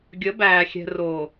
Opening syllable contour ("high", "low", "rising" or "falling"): rising